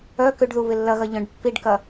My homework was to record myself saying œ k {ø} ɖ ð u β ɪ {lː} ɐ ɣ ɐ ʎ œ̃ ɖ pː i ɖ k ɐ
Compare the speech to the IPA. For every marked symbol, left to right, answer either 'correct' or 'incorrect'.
correct, correct

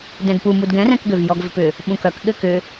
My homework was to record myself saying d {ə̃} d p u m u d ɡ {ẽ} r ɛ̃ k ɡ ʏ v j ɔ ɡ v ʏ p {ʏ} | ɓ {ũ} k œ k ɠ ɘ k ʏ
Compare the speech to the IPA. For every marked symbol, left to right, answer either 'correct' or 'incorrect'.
incorrect, incorrect, correct, correct

